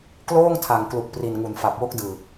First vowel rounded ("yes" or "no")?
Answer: yes